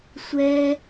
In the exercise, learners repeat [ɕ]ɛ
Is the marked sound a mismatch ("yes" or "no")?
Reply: yes